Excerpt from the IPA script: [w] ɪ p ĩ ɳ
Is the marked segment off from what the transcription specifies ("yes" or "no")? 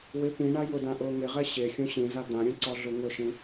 no